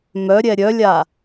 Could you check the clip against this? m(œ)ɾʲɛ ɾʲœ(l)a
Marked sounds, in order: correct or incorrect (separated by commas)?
correct, incorrect